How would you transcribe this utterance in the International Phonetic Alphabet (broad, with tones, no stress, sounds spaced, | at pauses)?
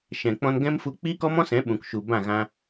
ʃ ɛ̃˨ k͡p ɔ̃˧ n ɡ ɛ̃˦ m f u˧ k͡p iː˦ k ɔ˦ m ɔ̃˦ s ɛ̃˨˦ ɓ ũ˨ k ʃ u˨ b ã˦˨ ɣ ã˧